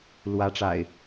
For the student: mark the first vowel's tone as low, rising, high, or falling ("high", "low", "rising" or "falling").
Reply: rising